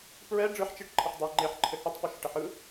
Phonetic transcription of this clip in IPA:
p ɹ ɛ ɖ͡ʐ ɯ ħ t͡ʃ i ʈ ǃʰ ə ħ dˤ e ŋ͡ǃ e ħ ǃʰ ɘ h ɯ tˤ p ɯ ʃ ɪ ʈ ə ħ ɯ

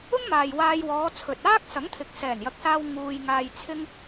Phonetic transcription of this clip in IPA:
ʊ˥ ŋ m aː˨ j w aː˧ j w ɔː˨˧ t͡sʰ ɵ˨ t̚ aː˥ k̚ s ɐ˨˥ ŋ t̪ʰ ɪ˨ k̚ s ɛː˨˩ n j ɐ˨ k̚ s aː˧ w ŋ uː˧ j ŋ aː˧ j t͡sʰ ɪ˥ ŋ

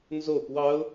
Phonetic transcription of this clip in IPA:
n z o p w ɑ ʊ̯

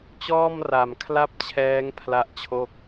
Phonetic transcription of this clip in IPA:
t͡ɕ ɔː˥˩ m r a˨˩ m kʰ l a˥˩ p̚ t͡ɕʰ ɛː˦˥ ŋ pʰ l a˥˩ ʔ t͡ɕʰ o˥˩ k̚

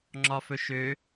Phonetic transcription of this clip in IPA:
ŋ͡ǁ ɒ f ɵ ʃ ø

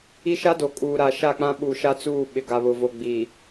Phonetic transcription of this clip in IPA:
i˦ ʃ a˦ d o˨ kʼ uː˨ ɾ a˨ ʃ a˦˨ k͡p ã˦ ɓ u˨ ʃ a˦ t͡s uː˦˨ ɓ ɪ˨ ɡ a˨ β ʊ˨ v o˨ ɡ͡b i˨

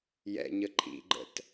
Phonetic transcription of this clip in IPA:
j ɛ̰ ɲ ə ǃʰ ḭ ɡ͡ǃ ə̰ t

